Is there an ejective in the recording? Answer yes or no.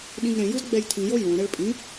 yes